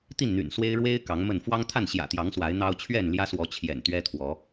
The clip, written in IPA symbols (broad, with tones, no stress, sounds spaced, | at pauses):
t̪ i˥˨ n n̪ y̰˨˩ n s w e˦ ɪ̯ ɻ w e˦ ɪ̯ k ɑ˨˦ ŋ m ə˥˨ n f w ɑ˦ ŋ t̪ʰ a˥˨ n ɕ j ä̰˨˩ t̪ j ɑ˨˦ ŋ s w a˨˦ ɪ̯ n̪ ɑ˦ ʊ̯ t͡ɕʰ ɥ ɛ˥˨ n l j ä˦ s w ɔ˨˦ t͡ɕʰ j ɛ̰˨˩ n t̪ ɥ ɛ˦ t̪ʰ w ɔ˨˦